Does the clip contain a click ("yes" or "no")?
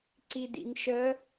yes